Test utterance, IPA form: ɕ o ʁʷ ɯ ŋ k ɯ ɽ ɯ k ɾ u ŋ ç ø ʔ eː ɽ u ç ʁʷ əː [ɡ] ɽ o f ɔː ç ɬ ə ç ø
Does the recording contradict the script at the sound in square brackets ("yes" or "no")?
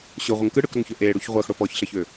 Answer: yes